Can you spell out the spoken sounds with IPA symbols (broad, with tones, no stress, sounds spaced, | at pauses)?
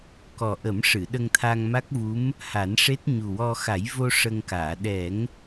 k ɔ˨˩ ʔ ə˨˩˦ m ʂ ɨ˨˩˨ ɗ ə˧ ŋ t̪ʰ a˧ ŋ m a˦˥ k̚ v u˧˥ m | h a˨˩˦ n ʂ e˦˥ t̚ ɲ u˨˩ w ɔ˧ x a˨˩˦ j v o˧ ʂ ə˧ ŋ k aː˨˩˨ ɗ ɛ˨˩˦ ŋ